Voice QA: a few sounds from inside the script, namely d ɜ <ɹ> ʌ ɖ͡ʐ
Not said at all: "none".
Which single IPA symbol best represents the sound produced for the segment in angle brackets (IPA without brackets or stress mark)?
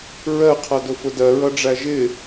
ɹ